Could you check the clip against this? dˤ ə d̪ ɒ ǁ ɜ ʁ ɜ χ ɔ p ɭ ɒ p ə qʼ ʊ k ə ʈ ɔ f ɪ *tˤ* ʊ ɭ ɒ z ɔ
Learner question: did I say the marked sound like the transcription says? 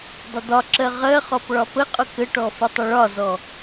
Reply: yes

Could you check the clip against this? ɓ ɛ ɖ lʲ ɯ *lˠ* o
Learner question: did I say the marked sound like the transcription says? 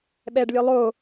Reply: yes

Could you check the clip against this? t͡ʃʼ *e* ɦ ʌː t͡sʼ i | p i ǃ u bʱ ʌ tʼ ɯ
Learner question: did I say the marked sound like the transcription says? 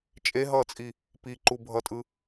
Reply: yes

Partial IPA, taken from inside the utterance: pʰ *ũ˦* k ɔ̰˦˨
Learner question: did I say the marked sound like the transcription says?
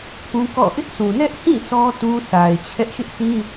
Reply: yes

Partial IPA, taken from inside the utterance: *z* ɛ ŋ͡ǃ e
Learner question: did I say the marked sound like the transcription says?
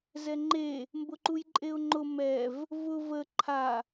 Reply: yes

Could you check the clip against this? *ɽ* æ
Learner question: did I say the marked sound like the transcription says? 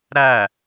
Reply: no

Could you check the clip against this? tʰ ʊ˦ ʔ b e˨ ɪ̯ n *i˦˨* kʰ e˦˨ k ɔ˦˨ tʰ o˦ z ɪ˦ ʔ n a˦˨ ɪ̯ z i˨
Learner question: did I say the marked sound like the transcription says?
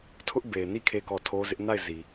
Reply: yes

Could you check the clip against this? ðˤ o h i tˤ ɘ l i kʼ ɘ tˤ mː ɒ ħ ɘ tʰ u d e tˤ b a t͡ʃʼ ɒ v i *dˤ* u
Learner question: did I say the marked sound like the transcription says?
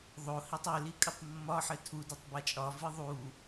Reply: no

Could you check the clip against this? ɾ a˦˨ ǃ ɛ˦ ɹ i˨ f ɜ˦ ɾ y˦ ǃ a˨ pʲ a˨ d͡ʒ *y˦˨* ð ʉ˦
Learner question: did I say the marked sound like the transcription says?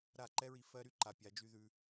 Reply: no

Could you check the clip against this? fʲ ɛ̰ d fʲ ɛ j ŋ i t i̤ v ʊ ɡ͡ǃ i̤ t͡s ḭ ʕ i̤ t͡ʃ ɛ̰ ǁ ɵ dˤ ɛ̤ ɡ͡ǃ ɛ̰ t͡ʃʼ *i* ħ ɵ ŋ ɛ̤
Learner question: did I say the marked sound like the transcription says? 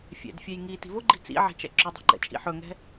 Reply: no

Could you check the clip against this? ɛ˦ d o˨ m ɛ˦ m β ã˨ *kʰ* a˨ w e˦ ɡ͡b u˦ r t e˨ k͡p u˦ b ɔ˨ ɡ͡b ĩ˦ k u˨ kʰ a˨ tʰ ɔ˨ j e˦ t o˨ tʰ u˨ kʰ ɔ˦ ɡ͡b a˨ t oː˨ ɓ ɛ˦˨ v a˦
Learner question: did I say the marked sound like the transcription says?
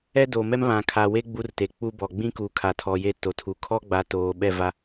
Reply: yes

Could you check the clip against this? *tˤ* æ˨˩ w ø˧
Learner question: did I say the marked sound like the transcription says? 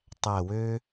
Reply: yes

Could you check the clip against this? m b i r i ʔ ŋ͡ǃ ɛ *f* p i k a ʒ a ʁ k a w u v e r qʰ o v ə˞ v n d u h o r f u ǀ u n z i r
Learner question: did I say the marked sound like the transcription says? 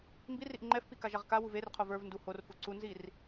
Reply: yes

